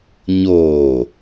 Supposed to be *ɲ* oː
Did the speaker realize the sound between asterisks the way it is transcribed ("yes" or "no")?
yes